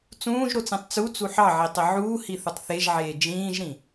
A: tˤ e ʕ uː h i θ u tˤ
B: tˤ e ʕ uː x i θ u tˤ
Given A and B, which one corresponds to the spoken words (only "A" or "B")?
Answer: A